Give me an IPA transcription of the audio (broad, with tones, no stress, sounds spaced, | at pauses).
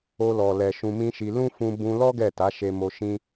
o˧ l ɔ˨ l ɛ˨ ʃ ũ˧ m ĩ˦ ʃ i˧ l ũ˦ f ũ˧ b ũ˧ l ɔ˦ ɡ ɛ˦˨ t a˨˦ ʃ e˧ m o˧ ʃ ĩ˧